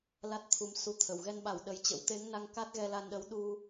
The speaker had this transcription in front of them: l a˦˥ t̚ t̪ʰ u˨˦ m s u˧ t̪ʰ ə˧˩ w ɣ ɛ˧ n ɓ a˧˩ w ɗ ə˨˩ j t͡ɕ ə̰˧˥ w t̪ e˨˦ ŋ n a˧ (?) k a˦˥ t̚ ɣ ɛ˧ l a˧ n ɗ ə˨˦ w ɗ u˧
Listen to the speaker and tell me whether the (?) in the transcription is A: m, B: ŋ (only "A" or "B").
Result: B